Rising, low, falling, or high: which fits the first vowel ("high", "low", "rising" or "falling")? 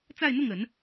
falling